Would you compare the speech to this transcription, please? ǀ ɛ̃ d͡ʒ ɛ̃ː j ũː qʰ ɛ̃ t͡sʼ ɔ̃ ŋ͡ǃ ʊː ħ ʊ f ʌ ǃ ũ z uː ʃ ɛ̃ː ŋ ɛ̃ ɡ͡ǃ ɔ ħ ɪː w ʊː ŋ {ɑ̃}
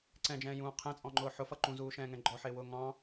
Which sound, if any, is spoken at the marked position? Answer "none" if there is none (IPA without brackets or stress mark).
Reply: ɑ̃